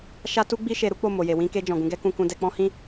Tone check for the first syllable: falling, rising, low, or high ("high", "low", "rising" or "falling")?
high